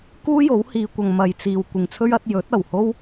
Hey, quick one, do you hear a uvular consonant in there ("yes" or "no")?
no